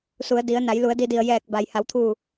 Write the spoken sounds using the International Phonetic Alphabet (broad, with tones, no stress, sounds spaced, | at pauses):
s u˩˧ ə̯ d i˩˧ ə̯ n a˩˧ j l u˩˧ ə̯ d i˧ d i˧˩ ə̯ j ɛː˧˩ k̚ b a˩ j h a˩˧ w t̪ʰ uː˧˩